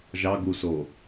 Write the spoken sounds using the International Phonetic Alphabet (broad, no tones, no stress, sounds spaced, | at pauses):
ʒ ɑ ɡ u s o